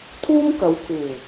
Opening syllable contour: high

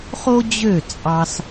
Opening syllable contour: high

